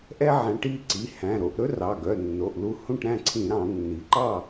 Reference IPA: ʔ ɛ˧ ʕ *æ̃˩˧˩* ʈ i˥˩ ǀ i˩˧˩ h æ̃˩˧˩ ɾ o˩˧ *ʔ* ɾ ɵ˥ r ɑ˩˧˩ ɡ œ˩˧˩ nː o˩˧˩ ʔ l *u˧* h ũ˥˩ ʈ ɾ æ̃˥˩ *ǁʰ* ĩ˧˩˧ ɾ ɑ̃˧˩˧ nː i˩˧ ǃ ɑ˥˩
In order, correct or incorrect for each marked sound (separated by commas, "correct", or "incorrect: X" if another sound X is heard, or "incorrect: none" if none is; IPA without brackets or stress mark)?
incorrect: æ̃˩˧, correct, correct, incorrect: ǀʰ